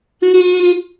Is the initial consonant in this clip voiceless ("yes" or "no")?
no